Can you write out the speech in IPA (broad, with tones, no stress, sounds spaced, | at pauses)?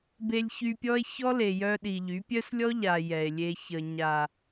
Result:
b e˧ lʲ ç y˧ pʲ ɔ˦ e̯ ç ɔ˦ l e˨ j œ˧ ɗ i˨ ʎ y˨˦ pʲ œ˦ s lʲ ɔ˦ ʎ a˨ j ɛ˨ e̯ lʲ e˧ ç ə˨ ɲ a˨